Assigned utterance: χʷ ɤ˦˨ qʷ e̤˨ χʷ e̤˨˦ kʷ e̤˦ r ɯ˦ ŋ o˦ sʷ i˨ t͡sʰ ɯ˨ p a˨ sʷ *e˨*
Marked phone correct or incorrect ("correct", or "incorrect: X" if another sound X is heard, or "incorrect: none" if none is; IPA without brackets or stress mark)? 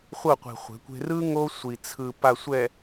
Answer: incorrect: ɛ˨